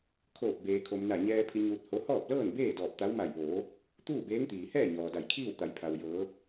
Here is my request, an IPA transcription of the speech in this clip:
kʰ oː˧˩ p̚ b eː˩ kʰ o˩ m n a˧˩ ɲ ɛː˧ pʰ i˧ ɲ uː˧ t̚ h o˧˥ h ɔː˥˨ p̚ l ɤː˥˨ n b eː˥˨ d ɔː˧˩ p̚ t̪ a˧˥ w m a˧˩ j ʋ oː˩˧ | t̪ uː˥˨ b eː˧˥ ŋ t̪ iː˩ h ɛː˥˨ ɲ ɔː˩ d a˧˩ j kʰ iː˥˨ w t̪ a˩˧ j pʰ a˩ w j ɤː˩˧

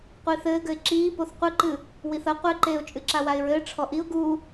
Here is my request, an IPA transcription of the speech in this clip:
qʷ iː θ ɘː ɡ ɘ ɪ̯ ǁ iː p o θ qʷ ɨ ǃ ɨ | w i θ ɐ qʷ ɘ ɪ̯ ǃ eː ʊ̯ t͡ʃʼ ɨ ǁ a w a ɪ̯ ɹ ɘː ʈ͡ʂʰ ɔ ʔ i ʊ̯ ɡ u

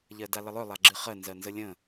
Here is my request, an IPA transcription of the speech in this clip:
ʎ ɜ d a l ə lˠ œ lˠ a ɡ͡ǁ ɨ χ ɜ n z ɜ n z ə lʲ ə̃

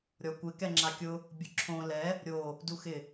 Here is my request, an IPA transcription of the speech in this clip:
ɾʲ ɔ kʷ ɪ k ɛ ŋ͡ǁ a kʲ ʊ | bʲ ʊ ǁʰ õ l ɛ | ɾʲ o | d u x ɪ

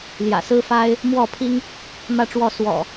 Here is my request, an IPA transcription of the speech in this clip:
l j ä̰˨˩ s ɹ̩˦ f a˦ ɪ̯ | m w ɔ˥˨ pʰ i˦ ŋ | m ä˥˨ ʈ͡ʂ w ɔ˥˨ s w ɔ̰˨˩

